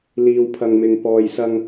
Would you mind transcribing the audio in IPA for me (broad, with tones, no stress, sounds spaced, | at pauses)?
l iː˧ w pʰ ɐ˧ ŋ m ɪ˧ ŋ p ɔː˨ j s ɐ˧ ŋ